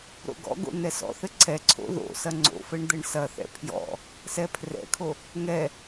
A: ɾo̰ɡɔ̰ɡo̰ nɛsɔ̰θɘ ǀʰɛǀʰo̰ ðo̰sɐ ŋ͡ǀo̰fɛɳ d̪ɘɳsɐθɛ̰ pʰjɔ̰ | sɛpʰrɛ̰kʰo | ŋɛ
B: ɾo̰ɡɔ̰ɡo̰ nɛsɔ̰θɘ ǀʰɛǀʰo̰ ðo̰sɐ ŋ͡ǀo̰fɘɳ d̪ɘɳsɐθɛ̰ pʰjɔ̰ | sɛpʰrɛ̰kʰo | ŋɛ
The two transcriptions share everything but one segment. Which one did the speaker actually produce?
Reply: B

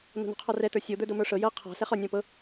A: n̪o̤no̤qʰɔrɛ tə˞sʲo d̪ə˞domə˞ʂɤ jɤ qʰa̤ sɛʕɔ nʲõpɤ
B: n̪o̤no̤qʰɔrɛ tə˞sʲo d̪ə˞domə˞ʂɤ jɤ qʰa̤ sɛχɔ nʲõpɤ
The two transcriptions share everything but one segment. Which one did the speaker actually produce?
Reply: B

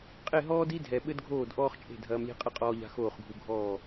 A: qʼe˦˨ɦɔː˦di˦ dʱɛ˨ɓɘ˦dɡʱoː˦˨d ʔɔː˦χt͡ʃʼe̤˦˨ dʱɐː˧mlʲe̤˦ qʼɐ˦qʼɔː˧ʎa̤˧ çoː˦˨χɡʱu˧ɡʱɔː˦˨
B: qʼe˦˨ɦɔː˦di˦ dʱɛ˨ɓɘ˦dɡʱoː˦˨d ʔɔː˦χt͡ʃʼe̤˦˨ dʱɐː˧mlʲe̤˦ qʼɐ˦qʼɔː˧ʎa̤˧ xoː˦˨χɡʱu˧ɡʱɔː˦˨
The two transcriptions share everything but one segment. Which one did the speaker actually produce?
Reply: B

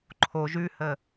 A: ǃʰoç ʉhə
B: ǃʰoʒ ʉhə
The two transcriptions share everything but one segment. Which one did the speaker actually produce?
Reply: B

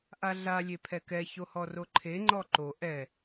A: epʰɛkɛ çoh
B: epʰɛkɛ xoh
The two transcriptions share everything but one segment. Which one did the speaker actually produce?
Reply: A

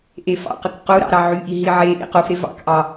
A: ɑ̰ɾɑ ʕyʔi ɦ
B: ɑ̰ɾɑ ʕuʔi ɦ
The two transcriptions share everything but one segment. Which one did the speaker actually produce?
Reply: A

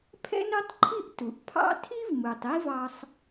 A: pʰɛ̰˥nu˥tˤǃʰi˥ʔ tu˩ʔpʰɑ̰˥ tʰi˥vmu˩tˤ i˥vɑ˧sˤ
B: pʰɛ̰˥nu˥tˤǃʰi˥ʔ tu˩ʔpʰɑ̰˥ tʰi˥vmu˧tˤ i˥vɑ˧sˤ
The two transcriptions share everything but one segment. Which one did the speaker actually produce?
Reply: A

